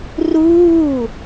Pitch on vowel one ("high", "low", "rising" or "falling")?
falling